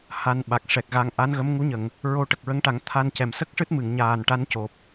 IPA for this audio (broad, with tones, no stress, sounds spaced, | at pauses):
h a˧ n ɓ a˨˩ k̚ ʂ ɛ˨˩ k̚ ɣ a˧ ŋ ʔ a˧˥ n ɣ ə˧˥ m ŋ u˧˥ ɲ ə˨˩˨ ŋ | ɹ o˧ ʈ ə˨˩ k̚ ɹ ə˧˥ ŋ ʈ a˨˩˦ ŋ t̪ʰ a˧ n c ɛ˨˩˨ m s ə˦˥ k̚ ʂ ɨ˦˥ t̚ m ɨ˨˩˨ ŋ ɲ aː˨˩ n ʈ a˧˥ n c o˨˩ p̚